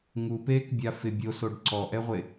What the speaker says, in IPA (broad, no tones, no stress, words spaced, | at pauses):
ŋupeːkbʲa fɪ bʲosoɖ ǀɔʔɛʁʷe